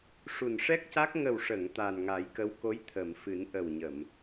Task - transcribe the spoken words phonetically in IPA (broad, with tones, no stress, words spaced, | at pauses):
ʂu˨˩nʂɛ˦˥k̚ca˦˥k̚ ŋə˨˩wʂə˨˩˨ŋ t̪a˨˩nŋa˨˩˦jkə˧˥wko˧˥j t̪ʰə˨˩˨mfɨ˨˩˦n ʔə˨˩wɲə˨˩˨m